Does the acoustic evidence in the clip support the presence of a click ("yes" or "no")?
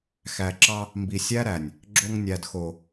yes